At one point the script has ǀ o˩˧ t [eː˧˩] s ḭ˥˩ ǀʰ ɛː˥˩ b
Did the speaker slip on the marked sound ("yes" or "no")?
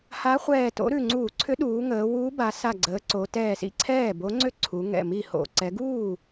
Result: yes